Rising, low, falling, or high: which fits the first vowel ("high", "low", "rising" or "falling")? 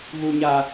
low